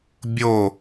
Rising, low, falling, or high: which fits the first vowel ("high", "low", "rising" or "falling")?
falling